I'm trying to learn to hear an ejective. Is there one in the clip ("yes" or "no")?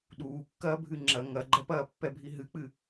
no